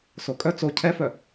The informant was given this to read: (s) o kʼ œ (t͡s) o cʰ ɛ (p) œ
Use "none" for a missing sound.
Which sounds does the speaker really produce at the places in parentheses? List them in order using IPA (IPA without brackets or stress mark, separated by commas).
s, t͡s, f